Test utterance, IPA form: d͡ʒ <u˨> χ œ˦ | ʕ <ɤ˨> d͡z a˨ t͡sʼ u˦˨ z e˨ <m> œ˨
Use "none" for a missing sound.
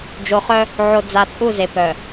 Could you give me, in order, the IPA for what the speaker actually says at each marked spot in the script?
o˨, o˨, p

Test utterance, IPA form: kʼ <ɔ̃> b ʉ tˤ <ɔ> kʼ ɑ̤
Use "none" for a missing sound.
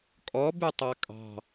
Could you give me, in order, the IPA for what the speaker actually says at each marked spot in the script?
ɔ, ɑ

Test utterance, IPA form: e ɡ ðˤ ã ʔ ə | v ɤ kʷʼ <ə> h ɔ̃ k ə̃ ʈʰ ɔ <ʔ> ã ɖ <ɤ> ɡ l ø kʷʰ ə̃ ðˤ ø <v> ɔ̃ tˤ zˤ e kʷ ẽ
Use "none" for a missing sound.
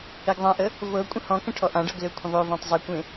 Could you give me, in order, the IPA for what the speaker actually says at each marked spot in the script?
ə̃, ʔ, ɤ, v

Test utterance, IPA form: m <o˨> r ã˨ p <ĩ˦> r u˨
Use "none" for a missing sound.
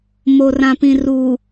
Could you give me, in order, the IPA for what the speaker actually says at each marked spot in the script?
o˨, ĩ˨

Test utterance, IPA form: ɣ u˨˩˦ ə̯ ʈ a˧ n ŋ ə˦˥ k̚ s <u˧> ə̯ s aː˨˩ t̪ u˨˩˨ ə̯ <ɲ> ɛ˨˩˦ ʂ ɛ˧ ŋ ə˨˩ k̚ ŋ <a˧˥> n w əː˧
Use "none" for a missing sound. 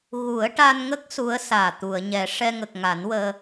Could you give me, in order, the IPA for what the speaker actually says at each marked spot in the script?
u˧˥, ɲ, a˨˩˦

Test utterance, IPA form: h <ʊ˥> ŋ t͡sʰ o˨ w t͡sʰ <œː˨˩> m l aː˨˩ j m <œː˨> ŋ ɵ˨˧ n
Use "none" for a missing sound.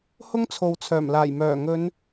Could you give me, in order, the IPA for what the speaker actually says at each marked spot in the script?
ʊ˥, œː˨˩, œː˨˩

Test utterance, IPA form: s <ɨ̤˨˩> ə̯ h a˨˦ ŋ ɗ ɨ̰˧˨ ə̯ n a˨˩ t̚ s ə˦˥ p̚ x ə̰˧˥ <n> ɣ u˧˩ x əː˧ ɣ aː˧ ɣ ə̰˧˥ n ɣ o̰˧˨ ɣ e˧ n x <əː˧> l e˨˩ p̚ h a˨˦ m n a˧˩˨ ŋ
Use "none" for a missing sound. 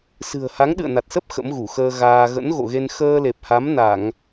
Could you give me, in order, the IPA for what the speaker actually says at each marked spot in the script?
ɨ̤˨˩, m, əː˧

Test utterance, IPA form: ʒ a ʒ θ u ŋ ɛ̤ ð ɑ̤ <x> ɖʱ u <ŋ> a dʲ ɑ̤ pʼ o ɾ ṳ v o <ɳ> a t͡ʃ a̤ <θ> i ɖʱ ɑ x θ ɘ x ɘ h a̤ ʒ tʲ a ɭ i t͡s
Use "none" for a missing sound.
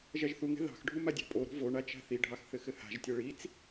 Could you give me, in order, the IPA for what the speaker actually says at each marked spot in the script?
x, m, ɳ, θ

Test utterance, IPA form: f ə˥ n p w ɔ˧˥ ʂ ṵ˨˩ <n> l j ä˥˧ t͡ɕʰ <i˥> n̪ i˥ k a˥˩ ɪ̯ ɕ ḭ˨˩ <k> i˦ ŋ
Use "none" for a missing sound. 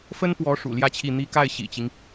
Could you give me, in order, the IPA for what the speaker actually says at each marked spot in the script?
none, i˥˩, t͡ɕ

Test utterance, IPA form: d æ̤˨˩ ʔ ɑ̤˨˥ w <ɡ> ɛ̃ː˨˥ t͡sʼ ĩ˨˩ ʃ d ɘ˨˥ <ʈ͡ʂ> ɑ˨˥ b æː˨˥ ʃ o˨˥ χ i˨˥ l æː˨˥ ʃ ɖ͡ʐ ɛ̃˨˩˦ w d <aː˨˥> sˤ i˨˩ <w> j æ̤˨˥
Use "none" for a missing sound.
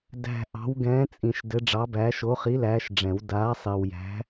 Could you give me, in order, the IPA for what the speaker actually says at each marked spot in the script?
ɡ, ɖ͡ʐ, aː˨˥, w

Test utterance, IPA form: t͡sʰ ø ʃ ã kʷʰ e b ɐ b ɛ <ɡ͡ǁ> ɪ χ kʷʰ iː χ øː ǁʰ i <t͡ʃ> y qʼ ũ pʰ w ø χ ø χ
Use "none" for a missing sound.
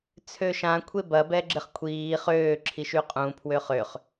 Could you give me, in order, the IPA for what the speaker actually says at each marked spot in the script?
ɡ͡ǁ, ʃ

